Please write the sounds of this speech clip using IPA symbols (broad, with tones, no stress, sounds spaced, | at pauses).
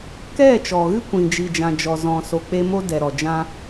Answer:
k ɛ˦˨ t͡ʃ ɔ˨ ɣ ɨ˦ kʷ ĩ˨ d͡ʒ i˨ d͡ʒ ã˨ d͡ʒ ɔ˨ z ɔ̃˨ s o˨ k͡p e˧ m o˦ d ɛ˨ ɾ ɔ˨ d͡ʒ ã˦